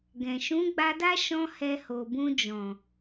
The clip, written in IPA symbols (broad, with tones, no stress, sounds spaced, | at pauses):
ɡ ɛ̃˨ ʃ ũ˨˦ ɡ͡b a˧ d a˦ ʃ ɔ̃˦ h ɛ˧ h o˨ b ũ˧ d͡ʒ ɔ̃˨